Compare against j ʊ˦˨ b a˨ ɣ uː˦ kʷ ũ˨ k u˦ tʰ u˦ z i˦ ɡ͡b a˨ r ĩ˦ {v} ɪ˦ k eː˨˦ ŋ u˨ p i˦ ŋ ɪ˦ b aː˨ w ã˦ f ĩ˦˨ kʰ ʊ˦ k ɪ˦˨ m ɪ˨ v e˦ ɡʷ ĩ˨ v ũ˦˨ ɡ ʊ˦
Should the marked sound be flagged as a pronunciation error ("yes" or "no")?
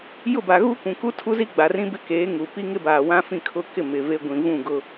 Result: yes